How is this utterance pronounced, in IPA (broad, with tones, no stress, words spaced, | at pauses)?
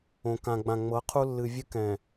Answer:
õ˨kã˨ɡ͡bã˨ ŋ͡mɤ˨˦qʰu˦lːɨ˨vʲɨ˦ kɛ̃˨